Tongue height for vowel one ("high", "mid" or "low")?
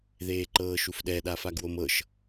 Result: mid